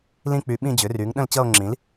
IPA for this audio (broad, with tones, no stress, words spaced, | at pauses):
lĩ˦˨k͡py˩˥ ɓĩ˦˨d͡ʑʏ˩˥ry˩˥ŋ ɗə̃˦˨lt͡ɕʌ˦˨o̯ŋ͡ǁĩ˩˥l